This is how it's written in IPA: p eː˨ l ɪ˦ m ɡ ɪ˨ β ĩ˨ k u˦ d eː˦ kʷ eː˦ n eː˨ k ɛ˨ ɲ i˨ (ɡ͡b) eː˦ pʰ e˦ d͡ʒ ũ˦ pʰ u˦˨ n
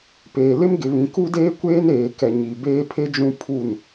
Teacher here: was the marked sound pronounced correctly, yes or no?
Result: no